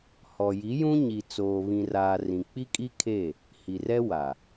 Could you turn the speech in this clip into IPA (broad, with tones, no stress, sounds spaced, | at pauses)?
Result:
h ɔ˨ j i˨˦ j ũ˦ ɲ i˨ t͡s oː˨ β ĩ˨ r aː˨ r ĩ˨ k͡p i˦ kʼ i˦ kʰ e˦˨ | h i˨ r ɛ˦ w a˨